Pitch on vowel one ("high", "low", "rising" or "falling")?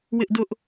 high